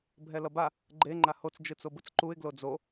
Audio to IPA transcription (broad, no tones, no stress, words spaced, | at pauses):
bʱɛlʌba | ɡ͡ǃe ŋ͡ǃahot͡s d͡ʒɯt͡sobɯt͡sǃuɪ̯ ɡlod͡zo